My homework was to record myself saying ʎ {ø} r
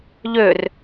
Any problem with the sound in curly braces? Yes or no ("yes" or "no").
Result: no